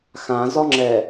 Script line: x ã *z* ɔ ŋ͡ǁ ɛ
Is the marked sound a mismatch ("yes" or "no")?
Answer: no